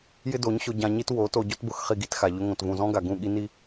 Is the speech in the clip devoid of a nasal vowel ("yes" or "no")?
no